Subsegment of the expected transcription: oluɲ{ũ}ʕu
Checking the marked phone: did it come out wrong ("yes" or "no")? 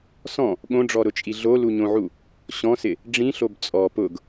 yes